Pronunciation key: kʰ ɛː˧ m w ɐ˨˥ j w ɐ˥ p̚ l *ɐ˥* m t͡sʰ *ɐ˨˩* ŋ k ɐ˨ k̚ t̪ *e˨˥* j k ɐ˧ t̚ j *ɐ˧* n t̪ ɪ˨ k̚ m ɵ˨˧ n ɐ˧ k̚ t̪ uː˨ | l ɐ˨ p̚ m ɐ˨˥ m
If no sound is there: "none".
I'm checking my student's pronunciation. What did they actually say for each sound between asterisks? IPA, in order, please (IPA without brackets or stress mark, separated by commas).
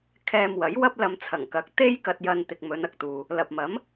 ɐ˧, ɐ˨˩, e˥, ɐ˧